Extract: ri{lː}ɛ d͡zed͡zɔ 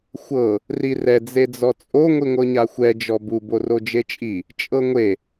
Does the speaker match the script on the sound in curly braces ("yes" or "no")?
no